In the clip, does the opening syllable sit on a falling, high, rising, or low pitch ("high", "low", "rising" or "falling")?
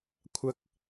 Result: high